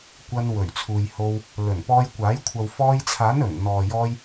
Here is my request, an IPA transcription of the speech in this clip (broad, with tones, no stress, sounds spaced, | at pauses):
kʷ ɐ˧ n w ɵ˨˩ ɥ t͡sʰ uː˨ j h o˧ w | l ɵ˨˩ n p ɔː˧ j kʷ aː˨˥ j kʷʰ ɐ˨ w f ɔː˧ j t͡sʰ aː˨˥ n ɵ˨˩ n n̪ ɔː˨ j ɔː˧ j